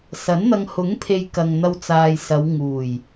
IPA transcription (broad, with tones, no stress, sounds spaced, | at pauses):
s ɐ˨˥ n n̪ ɐ˧ ŋ h ʊ˨˥ ŋ pʰ e˨ j k ɐ˨ ŋ n̪ ɐ˧ w t͡s aː˨ j s ɐ˨˧ w ŋ uː˨˩ j